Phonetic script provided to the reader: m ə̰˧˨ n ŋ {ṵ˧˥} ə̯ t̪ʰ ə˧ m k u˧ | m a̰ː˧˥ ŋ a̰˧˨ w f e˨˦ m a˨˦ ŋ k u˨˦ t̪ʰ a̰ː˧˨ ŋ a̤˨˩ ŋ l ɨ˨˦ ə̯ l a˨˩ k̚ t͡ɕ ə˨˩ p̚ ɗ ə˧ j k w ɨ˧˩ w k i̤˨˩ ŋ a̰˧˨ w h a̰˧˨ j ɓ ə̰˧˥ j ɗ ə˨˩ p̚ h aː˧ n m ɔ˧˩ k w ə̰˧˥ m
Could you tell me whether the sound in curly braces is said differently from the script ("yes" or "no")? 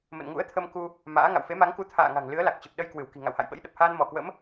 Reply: no